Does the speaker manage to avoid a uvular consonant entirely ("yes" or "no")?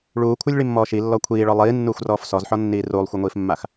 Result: yes